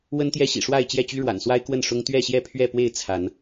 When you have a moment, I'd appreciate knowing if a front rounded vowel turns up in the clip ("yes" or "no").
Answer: yes